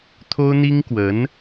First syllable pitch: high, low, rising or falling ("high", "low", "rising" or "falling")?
high